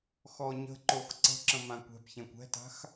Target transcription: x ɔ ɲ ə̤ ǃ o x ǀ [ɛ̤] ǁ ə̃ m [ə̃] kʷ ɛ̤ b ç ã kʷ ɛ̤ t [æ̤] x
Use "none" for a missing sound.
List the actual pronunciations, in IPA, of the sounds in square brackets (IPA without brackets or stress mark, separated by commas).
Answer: ə̤, ã, a̤